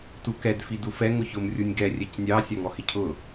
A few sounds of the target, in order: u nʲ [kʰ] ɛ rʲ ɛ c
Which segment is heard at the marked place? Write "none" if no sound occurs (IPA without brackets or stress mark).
ɡ